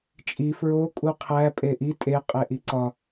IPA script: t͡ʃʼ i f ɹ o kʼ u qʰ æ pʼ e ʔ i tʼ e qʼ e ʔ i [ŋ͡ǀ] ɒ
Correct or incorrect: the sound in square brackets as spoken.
incorrect: ǀ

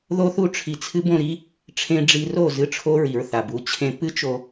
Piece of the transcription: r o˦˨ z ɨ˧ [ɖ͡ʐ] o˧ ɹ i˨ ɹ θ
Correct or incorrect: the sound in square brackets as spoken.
incorrect: ʈ͡ʂʰ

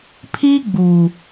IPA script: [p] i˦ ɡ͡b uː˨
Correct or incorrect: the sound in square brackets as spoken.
incorrect: pʰ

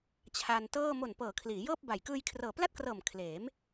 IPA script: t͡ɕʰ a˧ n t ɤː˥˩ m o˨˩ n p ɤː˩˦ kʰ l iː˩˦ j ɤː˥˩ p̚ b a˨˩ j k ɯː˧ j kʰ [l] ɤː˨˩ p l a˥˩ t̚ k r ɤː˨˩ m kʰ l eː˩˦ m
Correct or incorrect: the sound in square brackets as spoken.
incorrect: r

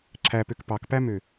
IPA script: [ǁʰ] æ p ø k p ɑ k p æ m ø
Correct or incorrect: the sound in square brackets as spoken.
correct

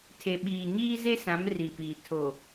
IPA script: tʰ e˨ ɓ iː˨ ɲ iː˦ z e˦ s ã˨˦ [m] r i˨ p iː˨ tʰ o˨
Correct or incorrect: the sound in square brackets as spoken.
correct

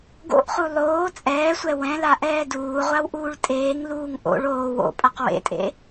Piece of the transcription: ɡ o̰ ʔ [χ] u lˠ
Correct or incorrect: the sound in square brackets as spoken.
correct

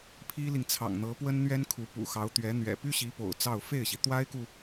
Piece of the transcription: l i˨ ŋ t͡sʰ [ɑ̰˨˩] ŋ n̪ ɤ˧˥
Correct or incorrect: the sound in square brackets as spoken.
correct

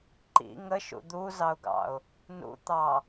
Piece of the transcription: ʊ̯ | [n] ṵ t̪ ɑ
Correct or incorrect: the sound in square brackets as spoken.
correct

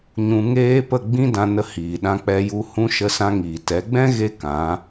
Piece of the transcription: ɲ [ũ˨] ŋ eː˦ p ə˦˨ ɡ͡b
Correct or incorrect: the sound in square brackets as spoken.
incorrect: ũ˧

